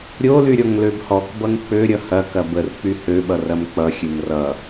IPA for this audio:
ɾʲ o l y ɾʲ ɔ ŋ l ø b h ɔ k b ʌ ŋ k͡p ø ɾʲ ʌ h ɐ k ɐ b ə r k͡p y h ø ɓ ʌ r ɐ m k͡p ʌ xʲ ø m r ʌ

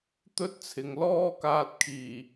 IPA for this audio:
t̪ ɵ˥ t̚ t͡sʰ ɪ˨ ŋ l ɔː˥ k aː˧ t̚ kʰ iː˨˩

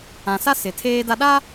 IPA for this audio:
ã˨ s a˦ s ɪ˨ tʰ eː˦ d a˦ ɗ a˦

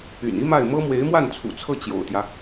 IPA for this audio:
y̰˨˩ n i˥ m a˥˩ ɪ̯ m ɤ˥ m w e˧˥ ɪ̯ m w a˥˩ n t͡sʰ ṵ˨˩ t͡sʰ ɤ˥˩ t͡ɕ j o̰˨˩ ʊ̯ t̪ j ä˦

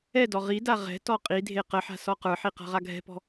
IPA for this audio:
ɛ d ɔ ʁ i d a ʁ ɛ̤ t ɔ qʼ i dʱ e q ə ħ a̤ s ɔ q ə˞ ħ i q a̤ ʁ a ɡʱ ɛ̤ p ɔ̤

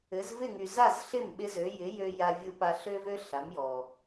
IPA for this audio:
ɘ˩˥ z v ɪ˥˩ ŋ y˩ z a˥˩ z ɬ ɪ˥˩ m ɓ ɪ˥ z ø˩˥ j ɪ˩˥ j ø˧ j a˧ vʲ u˧ p a˧ ɬ ø˥ v ø˥ ɬ a˩˥ m j ɔ˩

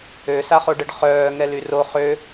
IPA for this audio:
ø s a χ o ɖ ə ɖ χ œː ŋ ɛ l y r o χ ø

